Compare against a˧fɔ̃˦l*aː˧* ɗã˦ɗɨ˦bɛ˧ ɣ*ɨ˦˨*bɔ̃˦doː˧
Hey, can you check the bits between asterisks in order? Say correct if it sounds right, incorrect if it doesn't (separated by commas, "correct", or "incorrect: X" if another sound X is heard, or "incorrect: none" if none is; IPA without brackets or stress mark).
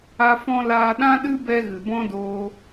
correct, incorrect: ɨ˨